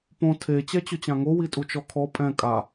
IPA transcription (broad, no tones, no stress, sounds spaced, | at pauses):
p õ tʰ e t͡ɕ ɛ t͡ɕ ʊ t͡ɕ ã ŋ o w i tʼ u t͡ʃ ɔ kʰ ɔ pʼ ɛ̃ kʼ a